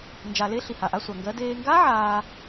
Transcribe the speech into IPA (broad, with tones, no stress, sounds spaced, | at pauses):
n d͡ʒ a˧ l e˦˥ ɬ i˧ h a˧ ʔ a˦˥ sʷ a˧ ŋ ɡ ɜ˦˥ d eː˧ ŋ ɡ a˦˥ ʕ aː˧